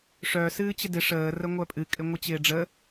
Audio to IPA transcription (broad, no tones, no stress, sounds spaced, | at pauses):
ʂ œ s ɨː t͡ɕ ɪ d ɪ ʂ əː r ə ŋʷ œ pʼ ɨ kʼ ɪ ŋʷ ɨ t͡ɕ ɪː ɖ͡ʐ ə